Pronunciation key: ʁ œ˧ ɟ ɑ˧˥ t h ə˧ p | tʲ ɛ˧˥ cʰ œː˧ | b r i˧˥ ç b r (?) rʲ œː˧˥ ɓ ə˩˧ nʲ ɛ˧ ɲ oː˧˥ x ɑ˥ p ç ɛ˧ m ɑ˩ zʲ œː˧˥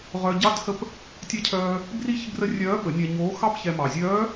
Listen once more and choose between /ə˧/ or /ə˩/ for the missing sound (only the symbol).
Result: ə˧